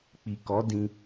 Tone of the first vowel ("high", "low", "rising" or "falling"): low